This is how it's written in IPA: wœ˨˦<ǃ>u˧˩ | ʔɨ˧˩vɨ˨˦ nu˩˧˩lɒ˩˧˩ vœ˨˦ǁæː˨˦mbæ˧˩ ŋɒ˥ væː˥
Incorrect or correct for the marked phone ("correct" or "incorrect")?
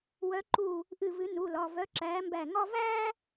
correct